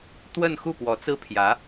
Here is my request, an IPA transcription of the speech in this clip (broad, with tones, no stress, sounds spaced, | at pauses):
t̪ w ə˥˧ n x u˥˩ p w ɔ˧˥ t͡s ɹ̩˥ pʰ j ä˧˥